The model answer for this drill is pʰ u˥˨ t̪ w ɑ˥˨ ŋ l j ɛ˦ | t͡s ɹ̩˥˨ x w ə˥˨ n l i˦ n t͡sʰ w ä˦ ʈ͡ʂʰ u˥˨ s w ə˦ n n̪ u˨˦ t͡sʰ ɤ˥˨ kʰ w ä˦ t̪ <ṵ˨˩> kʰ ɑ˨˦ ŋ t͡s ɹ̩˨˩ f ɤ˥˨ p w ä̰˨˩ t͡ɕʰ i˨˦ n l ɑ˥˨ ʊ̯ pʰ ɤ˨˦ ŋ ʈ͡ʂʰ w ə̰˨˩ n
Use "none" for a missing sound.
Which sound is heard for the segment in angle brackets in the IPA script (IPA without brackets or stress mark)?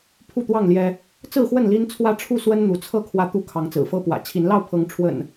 u˦